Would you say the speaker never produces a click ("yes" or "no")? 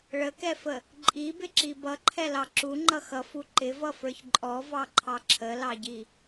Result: no